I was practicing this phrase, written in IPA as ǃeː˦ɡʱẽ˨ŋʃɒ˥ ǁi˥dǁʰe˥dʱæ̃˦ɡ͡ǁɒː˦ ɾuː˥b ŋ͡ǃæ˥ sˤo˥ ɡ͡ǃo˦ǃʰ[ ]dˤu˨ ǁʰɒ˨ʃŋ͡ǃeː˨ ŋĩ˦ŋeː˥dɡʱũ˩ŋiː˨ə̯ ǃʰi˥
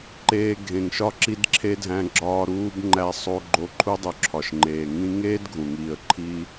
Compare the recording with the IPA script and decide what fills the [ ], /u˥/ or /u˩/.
u˥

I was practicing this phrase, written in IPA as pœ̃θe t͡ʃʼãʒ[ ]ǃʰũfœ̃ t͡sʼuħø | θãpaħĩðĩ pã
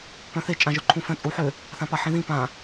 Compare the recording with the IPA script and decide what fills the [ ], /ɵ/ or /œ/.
œ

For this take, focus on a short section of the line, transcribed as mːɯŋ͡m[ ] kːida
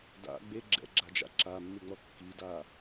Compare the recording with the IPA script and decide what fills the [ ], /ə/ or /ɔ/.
ɔ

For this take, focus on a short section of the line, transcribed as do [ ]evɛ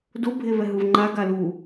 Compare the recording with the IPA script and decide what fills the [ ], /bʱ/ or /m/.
bʱ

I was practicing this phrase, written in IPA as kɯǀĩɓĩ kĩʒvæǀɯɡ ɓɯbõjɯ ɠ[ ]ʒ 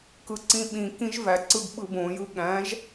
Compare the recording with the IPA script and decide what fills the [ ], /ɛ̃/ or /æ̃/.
æ̃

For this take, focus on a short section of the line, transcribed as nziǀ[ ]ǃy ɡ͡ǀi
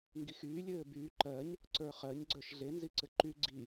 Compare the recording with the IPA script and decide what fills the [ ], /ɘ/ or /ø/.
ɘ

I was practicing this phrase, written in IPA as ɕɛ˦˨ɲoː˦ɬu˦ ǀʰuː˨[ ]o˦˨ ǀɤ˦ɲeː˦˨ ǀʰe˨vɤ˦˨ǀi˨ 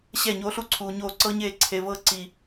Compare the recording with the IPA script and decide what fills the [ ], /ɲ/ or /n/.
ɲ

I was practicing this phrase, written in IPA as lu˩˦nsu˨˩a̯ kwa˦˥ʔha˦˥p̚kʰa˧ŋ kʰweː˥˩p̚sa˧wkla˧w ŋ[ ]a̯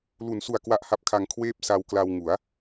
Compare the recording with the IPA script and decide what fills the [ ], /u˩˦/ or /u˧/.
u˩˦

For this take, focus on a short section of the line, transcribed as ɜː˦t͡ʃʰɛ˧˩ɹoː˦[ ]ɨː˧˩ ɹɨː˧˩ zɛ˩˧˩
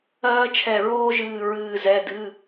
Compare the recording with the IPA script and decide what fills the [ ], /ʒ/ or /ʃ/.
ʒ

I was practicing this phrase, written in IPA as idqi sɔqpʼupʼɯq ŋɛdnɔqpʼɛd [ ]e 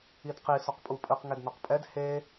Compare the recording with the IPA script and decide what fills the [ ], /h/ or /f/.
h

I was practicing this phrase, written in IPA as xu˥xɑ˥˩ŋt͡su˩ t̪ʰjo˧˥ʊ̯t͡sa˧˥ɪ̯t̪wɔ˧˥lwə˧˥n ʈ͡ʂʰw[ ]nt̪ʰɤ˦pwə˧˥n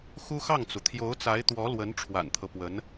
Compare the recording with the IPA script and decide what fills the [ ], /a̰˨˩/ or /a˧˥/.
a̰˨˩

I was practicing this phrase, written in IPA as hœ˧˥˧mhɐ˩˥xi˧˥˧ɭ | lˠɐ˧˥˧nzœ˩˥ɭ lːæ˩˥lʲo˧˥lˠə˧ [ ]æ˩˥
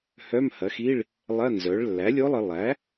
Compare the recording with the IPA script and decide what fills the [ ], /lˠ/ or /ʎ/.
lˠ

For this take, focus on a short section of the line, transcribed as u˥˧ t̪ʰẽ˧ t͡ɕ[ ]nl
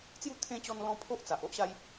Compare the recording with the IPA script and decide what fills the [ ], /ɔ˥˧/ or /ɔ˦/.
ɔ˦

